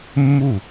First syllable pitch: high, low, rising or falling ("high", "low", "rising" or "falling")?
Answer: falling